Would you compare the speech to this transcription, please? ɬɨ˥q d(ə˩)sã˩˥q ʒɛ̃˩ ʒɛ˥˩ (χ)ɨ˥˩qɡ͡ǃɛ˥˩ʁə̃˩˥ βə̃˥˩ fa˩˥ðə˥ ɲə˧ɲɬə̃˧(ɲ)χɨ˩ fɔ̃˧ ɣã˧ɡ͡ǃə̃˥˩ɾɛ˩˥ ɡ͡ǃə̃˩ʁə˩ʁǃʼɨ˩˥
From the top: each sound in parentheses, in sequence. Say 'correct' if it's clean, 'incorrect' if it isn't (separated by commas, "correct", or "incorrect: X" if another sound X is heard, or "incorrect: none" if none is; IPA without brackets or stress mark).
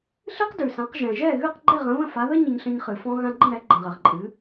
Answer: incorrect: ʉ˩, incorrect: ɣ, correct